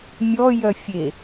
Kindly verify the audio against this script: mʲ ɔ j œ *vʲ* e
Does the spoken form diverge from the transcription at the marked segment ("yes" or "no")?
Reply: yes